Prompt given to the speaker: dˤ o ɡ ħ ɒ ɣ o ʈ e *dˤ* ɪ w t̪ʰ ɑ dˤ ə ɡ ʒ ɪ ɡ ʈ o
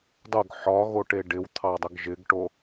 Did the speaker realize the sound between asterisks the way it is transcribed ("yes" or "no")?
no